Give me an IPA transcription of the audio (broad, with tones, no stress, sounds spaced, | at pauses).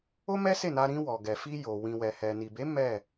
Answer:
o˦ m ɛ˦ s e˦˨ n a˧ ɾ ĩ˧ w ɔ˨ ɡ ɛ˨ f i˧ j o˨ w ĩ˨ w ɛ˨ h ɛ˨ n i˨ b e˨˦ m ɛ˦˨